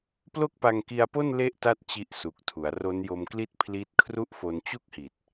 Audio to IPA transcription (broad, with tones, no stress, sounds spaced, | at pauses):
p l o˥˩ k̚ p a˧ ŋ k i˧ a̯ p o˥˩ n l e˥˩ ʔ t a˥˩ t̚ t͡ɕ i˦˥ ʔ s u˨˩ k̚ tʰ u˩˦ a̯ r o˦˥ n j o˧ m k l i˥˩ t̚ pʰ l i˦˥ t̚ kʰ r u˥˩ ʔ f o˧ n t͡ɕ u˥˩ k̚ h i˨˩ t̚